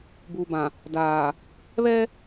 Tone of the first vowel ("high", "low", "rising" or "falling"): low